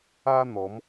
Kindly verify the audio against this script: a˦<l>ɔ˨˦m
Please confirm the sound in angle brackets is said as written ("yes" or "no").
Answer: no